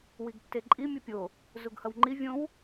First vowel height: high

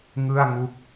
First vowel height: high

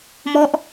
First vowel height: mid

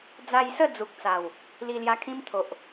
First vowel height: low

